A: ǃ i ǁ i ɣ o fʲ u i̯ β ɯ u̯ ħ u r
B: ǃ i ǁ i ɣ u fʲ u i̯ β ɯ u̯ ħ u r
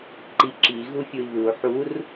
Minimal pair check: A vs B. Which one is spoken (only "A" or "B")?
B